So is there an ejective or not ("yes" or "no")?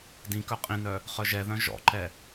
yes